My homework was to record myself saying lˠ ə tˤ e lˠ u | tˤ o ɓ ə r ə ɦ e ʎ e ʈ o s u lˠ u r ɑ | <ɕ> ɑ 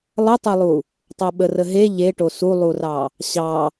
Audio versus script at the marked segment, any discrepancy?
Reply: no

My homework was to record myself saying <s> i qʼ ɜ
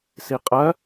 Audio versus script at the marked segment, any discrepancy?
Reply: no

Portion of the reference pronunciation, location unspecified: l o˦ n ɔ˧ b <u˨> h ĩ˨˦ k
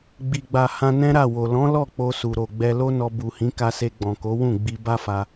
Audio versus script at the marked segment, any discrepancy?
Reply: no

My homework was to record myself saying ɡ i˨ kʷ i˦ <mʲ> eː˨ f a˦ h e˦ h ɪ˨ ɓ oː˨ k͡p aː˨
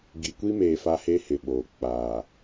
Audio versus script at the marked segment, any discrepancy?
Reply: yes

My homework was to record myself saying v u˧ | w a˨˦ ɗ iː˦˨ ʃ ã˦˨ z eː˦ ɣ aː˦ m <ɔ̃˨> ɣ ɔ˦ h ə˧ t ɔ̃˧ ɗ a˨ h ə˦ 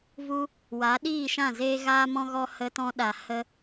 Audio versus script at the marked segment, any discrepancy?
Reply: yes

